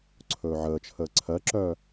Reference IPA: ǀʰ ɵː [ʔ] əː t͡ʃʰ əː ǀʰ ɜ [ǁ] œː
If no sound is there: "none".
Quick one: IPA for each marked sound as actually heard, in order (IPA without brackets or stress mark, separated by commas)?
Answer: ʕ, ǁ